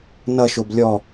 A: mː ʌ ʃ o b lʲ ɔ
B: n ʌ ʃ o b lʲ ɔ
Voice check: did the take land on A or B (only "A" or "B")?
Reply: B